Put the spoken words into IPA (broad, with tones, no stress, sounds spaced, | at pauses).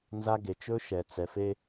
n z a˦ ɡ e˨ t͡ʃ ɵ˦ ʃ ɛ˨ t͡s ɛ˨ f e˦